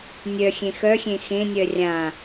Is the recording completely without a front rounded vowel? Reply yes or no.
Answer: no